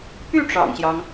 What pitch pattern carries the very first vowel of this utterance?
falling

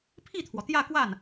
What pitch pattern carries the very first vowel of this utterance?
falling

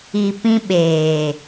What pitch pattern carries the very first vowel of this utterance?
low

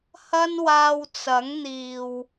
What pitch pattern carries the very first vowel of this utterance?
high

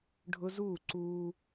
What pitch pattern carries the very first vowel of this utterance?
high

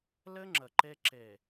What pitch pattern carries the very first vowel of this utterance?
high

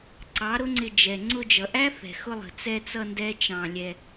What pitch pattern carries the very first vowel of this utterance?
rising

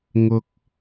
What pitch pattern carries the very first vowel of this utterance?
high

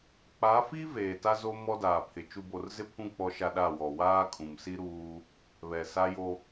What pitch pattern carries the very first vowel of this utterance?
rising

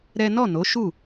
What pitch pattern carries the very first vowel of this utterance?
high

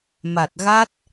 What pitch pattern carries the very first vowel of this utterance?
low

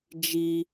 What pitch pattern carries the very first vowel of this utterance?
high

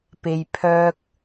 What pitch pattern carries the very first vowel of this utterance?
low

